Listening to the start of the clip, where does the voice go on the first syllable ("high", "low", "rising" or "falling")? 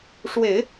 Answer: low